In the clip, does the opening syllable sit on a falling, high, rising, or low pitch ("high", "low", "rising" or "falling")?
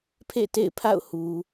falling